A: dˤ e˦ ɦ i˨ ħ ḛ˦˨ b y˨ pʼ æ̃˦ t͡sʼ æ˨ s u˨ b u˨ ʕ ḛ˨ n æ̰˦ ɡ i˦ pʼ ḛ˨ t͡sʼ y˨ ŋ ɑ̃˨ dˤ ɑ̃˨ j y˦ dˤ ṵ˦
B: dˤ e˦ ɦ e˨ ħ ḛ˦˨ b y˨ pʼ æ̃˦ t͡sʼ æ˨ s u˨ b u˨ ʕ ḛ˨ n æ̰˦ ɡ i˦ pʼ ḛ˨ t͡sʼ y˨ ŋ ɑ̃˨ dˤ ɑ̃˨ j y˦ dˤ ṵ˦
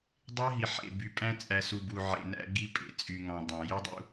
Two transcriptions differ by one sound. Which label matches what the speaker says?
A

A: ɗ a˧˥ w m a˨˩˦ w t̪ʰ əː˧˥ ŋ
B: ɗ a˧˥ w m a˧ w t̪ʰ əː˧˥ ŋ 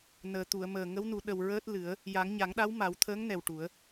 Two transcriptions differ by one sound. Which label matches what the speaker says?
A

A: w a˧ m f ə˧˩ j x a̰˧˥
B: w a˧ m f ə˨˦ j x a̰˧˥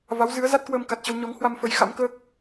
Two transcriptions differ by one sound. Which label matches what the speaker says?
B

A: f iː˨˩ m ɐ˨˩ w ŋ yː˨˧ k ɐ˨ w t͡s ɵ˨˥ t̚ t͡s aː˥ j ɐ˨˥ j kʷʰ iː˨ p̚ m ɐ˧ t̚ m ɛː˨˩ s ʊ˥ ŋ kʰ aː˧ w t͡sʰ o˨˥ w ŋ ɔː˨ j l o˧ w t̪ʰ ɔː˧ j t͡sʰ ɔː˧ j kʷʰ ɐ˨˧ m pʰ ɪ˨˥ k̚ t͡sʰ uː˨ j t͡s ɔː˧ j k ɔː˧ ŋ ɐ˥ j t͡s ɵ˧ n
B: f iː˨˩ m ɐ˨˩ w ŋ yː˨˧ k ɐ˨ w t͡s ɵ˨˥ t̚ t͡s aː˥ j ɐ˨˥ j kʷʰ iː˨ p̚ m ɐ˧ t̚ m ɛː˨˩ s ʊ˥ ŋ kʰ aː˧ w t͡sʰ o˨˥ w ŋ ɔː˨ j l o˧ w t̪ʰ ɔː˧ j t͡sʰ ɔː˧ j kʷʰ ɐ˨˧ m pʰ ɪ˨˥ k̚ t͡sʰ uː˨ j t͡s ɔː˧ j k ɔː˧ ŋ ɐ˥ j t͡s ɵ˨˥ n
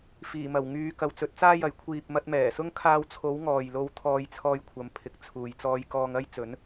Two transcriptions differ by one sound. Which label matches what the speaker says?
B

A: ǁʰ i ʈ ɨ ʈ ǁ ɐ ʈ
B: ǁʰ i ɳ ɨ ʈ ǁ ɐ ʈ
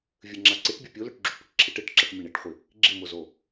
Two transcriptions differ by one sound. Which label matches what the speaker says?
A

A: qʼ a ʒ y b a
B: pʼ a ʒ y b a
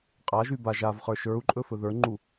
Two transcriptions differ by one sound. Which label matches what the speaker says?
A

